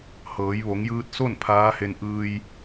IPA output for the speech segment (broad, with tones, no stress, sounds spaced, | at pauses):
h ɤː˩˧ j ʋ o˩˧ ŋ j ɯː˧ t̚ s o˥˨ n pʰ aː˧˥ h e˧ n ʔ ɯː˧ j